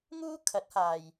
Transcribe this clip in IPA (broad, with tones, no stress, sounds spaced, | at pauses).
ŋ uː˥ kʰ ɐ˨˥ t̚ h aː˨ j